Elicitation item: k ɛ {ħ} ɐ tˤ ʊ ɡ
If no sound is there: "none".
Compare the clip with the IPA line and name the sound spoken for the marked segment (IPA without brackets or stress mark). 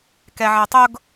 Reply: ʕ